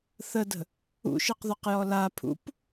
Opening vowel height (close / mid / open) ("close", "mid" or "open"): mid